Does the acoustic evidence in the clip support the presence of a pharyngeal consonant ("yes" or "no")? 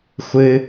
no